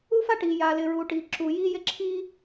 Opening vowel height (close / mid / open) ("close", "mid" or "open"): close